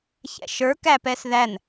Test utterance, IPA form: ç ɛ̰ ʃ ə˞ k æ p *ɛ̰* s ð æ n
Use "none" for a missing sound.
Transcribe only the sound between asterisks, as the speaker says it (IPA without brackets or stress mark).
ɛ